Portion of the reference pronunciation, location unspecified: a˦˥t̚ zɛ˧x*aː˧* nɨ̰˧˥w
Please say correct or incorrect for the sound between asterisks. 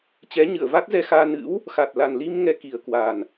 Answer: correct